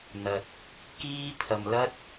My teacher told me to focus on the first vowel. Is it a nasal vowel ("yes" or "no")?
no